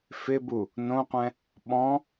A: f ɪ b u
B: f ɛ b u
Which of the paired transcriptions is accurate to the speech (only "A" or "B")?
A